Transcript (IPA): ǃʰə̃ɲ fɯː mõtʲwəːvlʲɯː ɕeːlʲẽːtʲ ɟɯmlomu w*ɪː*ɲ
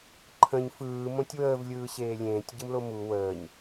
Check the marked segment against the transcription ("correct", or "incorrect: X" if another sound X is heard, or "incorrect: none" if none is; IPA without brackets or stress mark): incorrect: əː